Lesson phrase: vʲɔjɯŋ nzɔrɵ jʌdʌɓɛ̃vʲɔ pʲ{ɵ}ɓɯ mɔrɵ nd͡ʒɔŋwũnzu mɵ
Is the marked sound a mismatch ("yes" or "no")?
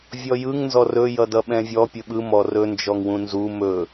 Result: no